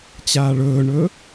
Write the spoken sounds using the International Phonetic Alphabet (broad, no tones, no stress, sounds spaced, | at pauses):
t͡ɕ aː ɭ ɵː ɳ ɵ